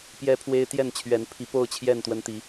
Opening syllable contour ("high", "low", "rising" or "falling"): high